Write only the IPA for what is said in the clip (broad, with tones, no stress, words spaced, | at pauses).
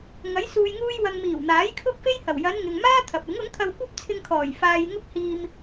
ŋɐ˨˥j suː˨jŋuː˧jwɐ˨ŋ miː˨˩w n̪aː˨˥jkʰʊ˥k̚fe˥jhɐ˨˩w jɐ˨˧n ŋɪ˨ŋmaː˥ t̪ʰɐ˨p̚ɪ˨˥ŋ ʊ˨˥ŋt̪ʰɐ˧wkʷɐ˥p̚t͡sʰɪ˧ŋ kʰɔː˨˩j faː˧jŋʊ˥k̚ hiː˧m